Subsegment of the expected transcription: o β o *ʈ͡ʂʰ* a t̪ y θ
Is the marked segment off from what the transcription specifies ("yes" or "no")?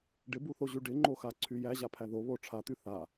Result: no